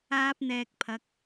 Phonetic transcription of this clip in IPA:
aː˥ p̚ n̪ ɛː˧ k̚ pʰ ɐ˨ k̚

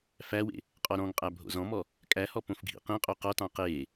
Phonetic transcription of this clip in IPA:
f æ w ḛ | qʼ ɔ ɾ ɔ̃ ŋ qʼ æ bʱ o̰ z ɔ̃ m ɔ | kʼ æ h ɔ p õ f ɡʱ ḭ q ĩ qʼ o q ɔ t ɑ̃ q eː

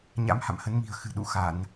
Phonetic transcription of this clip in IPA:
ɲ a̰˧˥ m h a̰˧˨ m h ə˨˦ n m i̤˨˩ ə̯ x ɨ̤˨˩ ɗ ṵ˧˨ x a˧˩˨ n

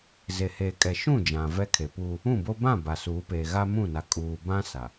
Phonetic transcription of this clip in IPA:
z e˨ h eː˨ kʼ ɛ˨ ʃ ũ˦˨ d͡ʒ ã˨ v ɛ˦ kʰ e˨ p uː˦ | ũ˦˨ b o˦ b ã˦˨ b a˨ s uː˨˦ p eː˨ ɣ a˦ m ũ˦˨ n a˨ kʼ uː˨ b ã˦ s a˨

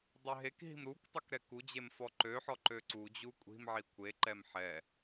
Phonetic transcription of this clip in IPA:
dˤ ø ɦ e k ɦ i̤ m ɾ u k tˤ ø k ɾ ɛ k u d͡ʑ e m f ɔ ǃ ø ħ ɔ ǃ ø ǀ u d͡ʑ u kʷʼ i̤ m ʕ i kʷʰ e ǃ ɛ m ħ ɛ

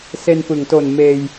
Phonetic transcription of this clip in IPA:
s e˧ n p ɯ˩˦ ŋ t o˨˩ n m eː˧ j

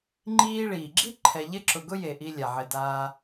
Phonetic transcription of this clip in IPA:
ŋ͡ǃ iː˦ ɭ iː˩ ɡ͡ǁ i˥ ǃʰ ɛ˨ ʎ ɪ˦ ǁ ʊ˨ ɡ ʊ˦ j e˩ ʔ i˨ lʲ a˩ ʕ ɪ˩ d aː˨

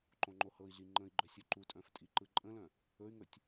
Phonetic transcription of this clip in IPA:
ǃ õ ŋ͡ǃ o h ɤ i̯ ɮ i ŋ͡ǃ ə̃ i̯ ɡ͡ǃ œ sʲ ɵ ǃ u tʼ œ̃ f tʼ i ǃ ɯ ǃʼ ə̃ l œ̃ | ɵ y̯ ŋ ɵ tʲ

